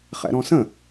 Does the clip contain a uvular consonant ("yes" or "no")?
yes